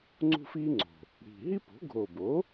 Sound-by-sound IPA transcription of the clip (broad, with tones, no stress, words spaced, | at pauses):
ŋ͡ǀṳ˥fiː˥ŋ͡ǀo̤˨˩ | ɽi̤˨˩ ɦi˥po̤˩˥ ɡʱo˨˩bo˩˥